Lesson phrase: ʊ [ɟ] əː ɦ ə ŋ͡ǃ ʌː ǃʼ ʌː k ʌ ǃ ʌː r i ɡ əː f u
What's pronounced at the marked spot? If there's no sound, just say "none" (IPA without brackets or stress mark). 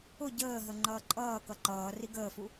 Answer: ɟ